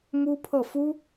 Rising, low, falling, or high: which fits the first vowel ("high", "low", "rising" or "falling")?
high